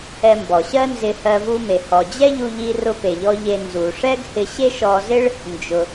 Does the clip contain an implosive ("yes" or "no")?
no